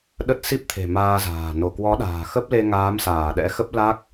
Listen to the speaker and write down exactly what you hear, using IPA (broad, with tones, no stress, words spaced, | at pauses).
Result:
ɗə˦˥t̚ si˦˥p̚t̪ʰe̤˨˩ maː˧za̤ː˨˩ no˧˩kwɔ˨˦ɗa̤ː˨˩ xə˦˥p̚le˧ ŋaː˨˦msaː˧˩ɗɛ̰˧˥xə˦˥p̚ la˦˥k̚